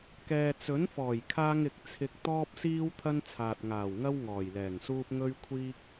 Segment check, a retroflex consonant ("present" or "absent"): absent